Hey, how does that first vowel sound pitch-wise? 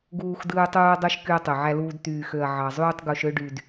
high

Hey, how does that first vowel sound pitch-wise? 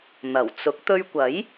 low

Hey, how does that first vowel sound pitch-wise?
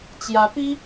rising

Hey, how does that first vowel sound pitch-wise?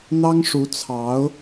high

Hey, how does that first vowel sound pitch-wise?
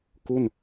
falling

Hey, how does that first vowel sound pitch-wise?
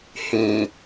low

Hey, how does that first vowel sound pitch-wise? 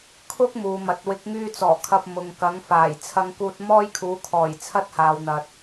high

